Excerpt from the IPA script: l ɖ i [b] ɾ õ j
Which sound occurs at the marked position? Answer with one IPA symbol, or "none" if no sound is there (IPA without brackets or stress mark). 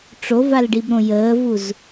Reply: b